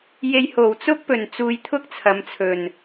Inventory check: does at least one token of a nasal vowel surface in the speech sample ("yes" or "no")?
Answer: no